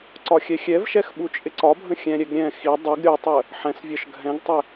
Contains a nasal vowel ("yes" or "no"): yes